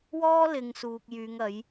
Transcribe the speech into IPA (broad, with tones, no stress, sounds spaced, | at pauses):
w ɔː˥ l ɪ˧ ŋ s uː˧ k̚ j yː˨˧ ŋ ɐ˨˥ j